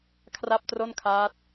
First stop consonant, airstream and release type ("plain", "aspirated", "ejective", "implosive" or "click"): aspirated